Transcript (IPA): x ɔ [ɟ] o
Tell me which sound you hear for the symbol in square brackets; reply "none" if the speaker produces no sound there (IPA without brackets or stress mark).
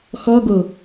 ɡ